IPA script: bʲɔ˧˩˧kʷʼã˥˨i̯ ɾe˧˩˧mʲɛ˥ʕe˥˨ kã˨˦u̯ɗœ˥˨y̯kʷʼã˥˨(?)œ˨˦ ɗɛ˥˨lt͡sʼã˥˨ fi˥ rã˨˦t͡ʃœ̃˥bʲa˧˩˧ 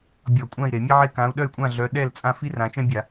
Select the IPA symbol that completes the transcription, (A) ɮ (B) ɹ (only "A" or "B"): A